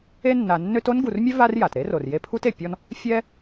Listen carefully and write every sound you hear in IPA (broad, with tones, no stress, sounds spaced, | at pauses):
e˦ nː a˨ nː ø˦ t o˥ n ɡ u˨ r mʲ ø˥ v a˦ r j a˩ t ɾ e˥ r o˩ r j e˦ pʰ u˥ t e˩ pʲ ɔ˦ n | fʲ ɛ˦